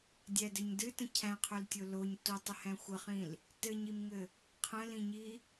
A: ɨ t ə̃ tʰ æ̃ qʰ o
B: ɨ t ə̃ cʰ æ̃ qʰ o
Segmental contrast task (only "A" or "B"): B